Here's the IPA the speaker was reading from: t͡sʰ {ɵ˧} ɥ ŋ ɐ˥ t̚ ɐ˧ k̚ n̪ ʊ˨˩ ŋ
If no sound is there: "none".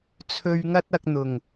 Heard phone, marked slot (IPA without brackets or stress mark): ɵ˧